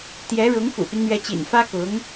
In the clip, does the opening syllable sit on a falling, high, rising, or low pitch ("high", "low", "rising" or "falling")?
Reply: rising